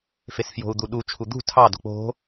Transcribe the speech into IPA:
f e s f j o̤ u̯ d̪ u ɗ u t͡ʃʰ u d̪ ṳ tʰ ɑ d o̤ k͡p o̤

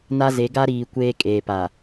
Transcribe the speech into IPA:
n a˦ z e˨˦ ɡ a˦ ɾ iː˨ kʷ eː˦ kʼ eː˨ p a˨

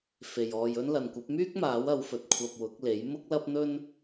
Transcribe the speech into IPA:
f e˨ j ɔː˧ j ɵ˥ n l ɐ˨ n kʷ ɐ˨˥ p̚ m yː˥ k̚ m aː˨˥ w ɐ˨˧ w f ɵ˨ t̚ kʷʰ ɐ˧ p̚ w ʊ˨˥ k̚ l e˨˥ j m ʊ˥ k̚ l ɐ˥ p̚ n̪ ɵ˥ n

